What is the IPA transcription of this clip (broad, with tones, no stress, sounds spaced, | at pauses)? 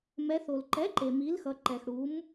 m ɛ˩˧ θ o˩ l ǃ ɛ˩˥ ǃ e˩ m i˩˥ l x ʌ˩˧ ǃ ɛ˩ x ɽ u˩˥ m